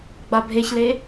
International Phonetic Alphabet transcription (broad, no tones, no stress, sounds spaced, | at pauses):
ɡ͡b a bʱ e ç l e